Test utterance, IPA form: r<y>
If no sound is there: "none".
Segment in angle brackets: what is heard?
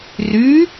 y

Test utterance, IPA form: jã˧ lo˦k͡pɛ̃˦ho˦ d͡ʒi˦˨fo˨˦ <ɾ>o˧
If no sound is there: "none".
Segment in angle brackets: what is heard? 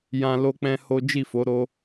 ɾ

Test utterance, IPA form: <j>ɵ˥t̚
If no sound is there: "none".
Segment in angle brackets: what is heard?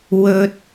w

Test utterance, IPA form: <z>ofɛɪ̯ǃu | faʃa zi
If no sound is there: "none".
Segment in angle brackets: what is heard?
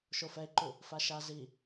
ʃ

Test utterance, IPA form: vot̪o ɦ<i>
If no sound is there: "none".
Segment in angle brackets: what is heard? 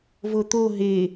e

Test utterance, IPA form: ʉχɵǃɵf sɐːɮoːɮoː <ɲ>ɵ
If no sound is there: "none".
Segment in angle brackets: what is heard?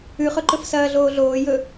j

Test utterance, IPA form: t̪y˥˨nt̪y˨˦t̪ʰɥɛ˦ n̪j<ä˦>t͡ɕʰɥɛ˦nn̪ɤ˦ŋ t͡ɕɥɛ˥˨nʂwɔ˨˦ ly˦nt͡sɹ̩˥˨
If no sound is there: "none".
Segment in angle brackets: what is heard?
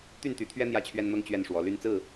ä˥˨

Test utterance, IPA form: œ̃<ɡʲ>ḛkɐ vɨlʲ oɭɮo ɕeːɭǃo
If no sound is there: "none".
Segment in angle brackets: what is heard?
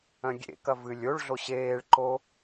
ɡʲ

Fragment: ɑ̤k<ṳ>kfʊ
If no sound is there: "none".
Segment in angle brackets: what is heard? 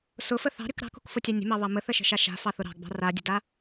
ṳ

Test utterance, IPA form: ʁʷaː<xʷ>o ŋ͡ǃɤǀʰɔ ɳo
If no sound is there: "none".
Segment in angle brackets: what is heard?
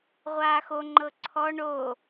x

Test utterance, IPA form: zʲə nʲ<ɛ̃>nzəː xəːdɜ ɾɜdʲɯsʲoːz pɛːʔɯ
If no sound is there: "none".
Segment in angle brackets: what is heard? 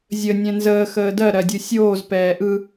ɛ̃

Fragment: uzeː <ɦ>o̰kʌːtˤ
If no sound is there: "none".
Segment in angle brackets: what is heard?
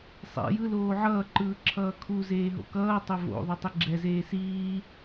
ɦ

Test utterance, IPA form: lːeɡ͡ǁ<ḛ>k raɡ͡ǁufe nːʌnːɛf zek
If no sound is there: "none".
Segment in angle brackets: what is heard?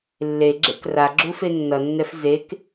ḛ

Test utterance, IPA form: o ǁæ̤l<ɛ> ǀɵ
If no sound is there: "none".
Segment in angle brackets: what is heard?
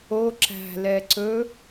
ɛ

